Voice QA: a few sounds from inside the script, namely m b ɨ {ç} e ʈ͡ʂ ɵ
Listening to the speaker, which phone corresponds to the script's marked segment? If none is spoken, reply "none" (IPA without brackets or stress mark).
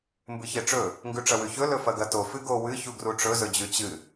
ç